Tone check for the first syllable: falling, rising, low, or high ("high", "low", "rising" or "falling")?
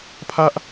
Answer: high